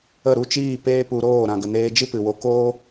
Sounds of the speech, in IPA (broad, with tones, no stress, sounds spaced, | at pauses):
ə˦˨ ɾ u˦˨ t͡ʃ iː˦˨ p eː˦ p u˧ ɾ oː˦˨ ɾ ã˨ ɡ ə˨ n eː˧ d͡ʒ ɨ˦ p ɨ˨ w o˧ k oː˦